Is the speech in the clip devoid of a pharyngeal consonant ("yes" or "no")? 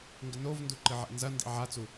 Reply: no